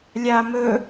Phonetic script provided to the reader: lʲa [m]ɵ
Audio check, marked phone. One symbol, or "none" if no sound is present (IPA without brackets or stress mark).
m